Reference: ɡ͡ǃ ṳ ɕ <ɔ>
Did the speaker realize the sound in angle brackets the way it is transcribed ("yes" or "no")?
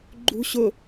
no